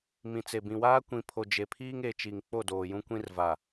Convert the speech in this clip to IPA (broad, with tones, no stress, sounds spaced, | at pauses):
m ĩ˨ t͡s e˨ b ĩ˨ w aː˦ kʷ ĩ˨ pʰ o˨ d͡ʒ e˨ pʰ iː˦ ŋ e˨ t͡ʃ i˨ ŋ k͡p o˦˨ d oː˨ j ũ˦ kʷ ĩ˦ r v a˨